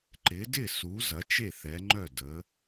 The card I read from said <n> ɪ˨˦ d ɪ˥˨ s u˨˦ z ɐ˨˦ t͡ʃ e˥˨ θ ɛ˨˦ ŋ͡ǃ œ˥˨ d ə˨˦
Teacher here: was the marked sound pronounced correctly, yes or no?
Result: no